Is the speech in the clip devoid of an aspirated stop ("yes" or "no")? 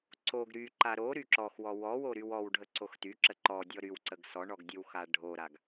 yes